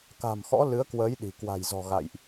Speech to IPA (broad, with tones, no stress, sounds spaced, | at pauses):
k a̤˨˩ m x ɔ̰˧˥ l ɨ˨˦ ə̯ k w əː˨˦ j ɗ i̤˨˩ k w a̤˨˩ j z ɔ̤˨˩ ɣ a̰˧˨ j ʔ